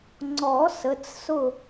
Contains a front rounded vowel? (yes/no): no